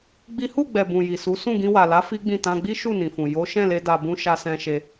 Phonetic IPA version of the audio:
ɡ͡bi˦ hu˦˨ɡ͡bɛ˨ bũ˨ji˨su˨˦ sũ˦˨ɡĩ˧wa˨la˨˦ fi˦ɡ͡bĩ˦˨ tã˧ɡ͡bi˦ ʃu˦˨nĩ˨fũ˨ jo˨˦ ʃɛ̃˦˨le˧ da˨bũ˧ ʃa˧sɛ̃˧ʃe˧

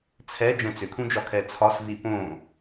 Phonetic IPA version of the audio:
t͡sʰɛ d͡ʒɛ̃t͡sʏkʰũd͡ʒɒ kʰɛt͡sʰɒsvi põ

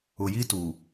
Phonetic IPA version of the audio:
ʊ˨jiː˦ tuː˨

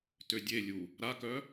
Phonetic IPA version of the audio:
tødʲelʲu | ɾakœ

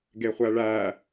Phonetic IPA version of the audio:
ɡeχʷæɭæ

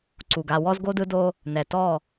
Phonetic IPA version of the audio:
ǀu˨ɡ a˨ wɔ˦zɡo˦dɯ˦do˦ | nɛ˨tɔ˦˨

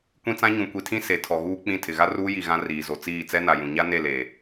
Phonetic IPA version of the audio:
kʷĩ˦t͡sã˦ ɲũ˨kʷi˨tʰĩ˦ se˨ tʰɔ˨ɣuː˦k͡pĩ˦˨ tʰɪ˨ɣa˦ruː˦ ji˨ ɣã˦ riː˨zo˨ t͡siː˦˨t͡sɛ˦na˨jũ˨ ɲa˦ ne˦˨leː˨

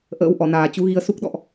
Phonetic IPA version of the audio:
ʔə̰ː˧˥wʔɔ˧˩naː˨˩ t͡ɕu˨˦ɣi˧ə̯ su˦˥k̚ɗɔ̰˧˨ʔ

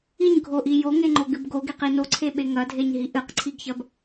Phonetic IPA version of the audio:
iɲɡʱoʔi joŋeŋ͡ǃoɡɨb ɡoɡeqi noǀʰeɓe ŋɐdʱeɲɦi ʔɨqǀʰiɡçɐb

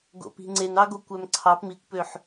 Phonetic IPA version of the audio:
ɡo̰pi̤ŋ͡ǀenɑ ɡokʷæmǀʰɑp mikʷpøħ

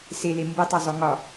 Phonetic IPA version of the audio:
sele mbetˤɛzˤo ŋɒ

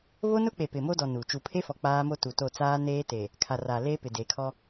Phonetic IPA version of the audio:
βo˦nʊ˦k͡pe˨ pɪ˨mo˦dɔ˨ nu˨ t͡ʃu˨pʰe˦fɔ˨ k͡paː˦mo˦ tu˨to˦˨ t͡saː˦neː˦te˨ | kʰa˨ra˨ leː˦pɪ˨de˨˦kʰɔ˦

